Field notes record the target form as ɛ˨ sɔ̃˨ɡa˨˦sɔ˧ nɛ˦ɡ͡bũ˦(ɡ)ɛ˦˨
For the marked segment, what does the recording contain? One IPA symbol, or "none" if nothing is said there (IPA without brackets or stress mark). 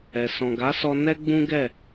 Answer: ɡ